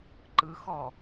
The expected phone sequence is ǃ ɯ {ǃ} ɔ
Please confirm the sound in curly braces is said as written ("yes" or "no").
no